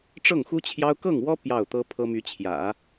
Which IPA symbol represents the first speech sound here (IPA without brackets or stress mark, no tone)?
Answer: ʈ͡ʂ